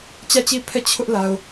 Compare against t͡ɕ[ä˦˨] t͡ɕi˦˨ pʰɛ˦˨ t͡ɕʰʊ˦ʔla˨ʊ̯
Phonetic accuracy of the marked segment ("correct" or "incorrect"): correct